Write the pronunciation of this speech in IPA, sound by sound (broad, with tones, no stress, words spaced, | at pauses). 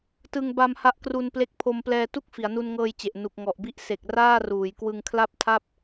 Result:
tɯ˧ŋba˧m ha˦˥ʔkru˧n ple˦˥k̚pʰo˧m plɛː˧ tu˥˩k̚fi˩˦a̯nu˧n ŋɤː˧jt͡ɕe˨˩ʔ nu˨˩k̚ŋɔ˨˩ʔbi˦˥ʔ se˨˩k̚ raː˥˩ruː˩˦j kwɯ˧ŋkʰla˥˩p̚tʰa˥˩p̚